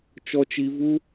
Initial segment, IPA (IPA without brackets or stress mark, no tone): t͡ʃ